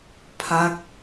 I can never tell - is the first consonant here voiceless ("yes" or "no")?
yes